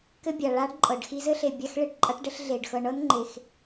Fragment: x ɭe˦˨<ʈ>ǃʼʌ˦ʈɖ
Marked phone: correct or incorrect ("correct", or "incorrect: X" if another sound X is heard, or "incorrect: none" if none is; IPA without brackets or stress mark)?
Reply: correct